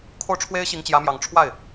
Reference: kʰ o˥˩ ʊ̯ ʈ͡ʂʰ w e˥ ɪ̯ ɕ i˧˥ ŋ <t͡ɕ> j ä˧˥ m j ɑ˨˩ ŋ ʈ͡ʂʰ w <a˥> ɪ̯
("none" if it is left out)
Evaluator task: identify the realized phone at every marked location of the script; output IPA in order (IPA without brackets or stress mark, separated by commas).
t͡ɕ, a˥˩